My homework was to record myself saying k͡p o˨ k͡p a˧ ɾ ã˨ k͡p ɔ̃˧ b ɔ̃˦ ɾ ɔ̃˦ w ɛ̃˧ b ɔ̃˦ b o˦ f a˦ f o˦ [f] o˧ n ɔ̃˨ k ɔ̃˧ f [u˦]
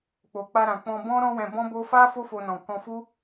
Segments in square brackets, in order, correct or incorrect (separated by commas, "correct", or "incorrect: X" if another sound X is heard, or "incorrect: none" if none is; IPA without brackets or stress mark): correct, correct